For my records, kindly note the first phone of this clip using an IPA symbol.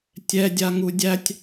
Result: tʲ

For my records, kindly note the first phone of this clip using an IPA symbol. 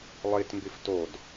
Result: lˠ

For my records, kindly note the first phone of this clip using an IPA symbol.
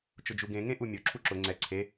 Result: t͡ʃ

